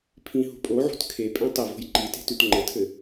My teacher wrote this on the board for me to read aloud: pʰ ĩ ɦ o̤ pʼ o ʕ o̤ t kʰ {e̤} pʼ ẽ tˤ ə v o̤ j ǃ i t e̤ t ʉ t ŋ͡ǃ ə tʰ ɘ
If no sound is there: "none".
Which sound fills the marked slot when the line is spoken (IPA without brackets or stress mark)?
e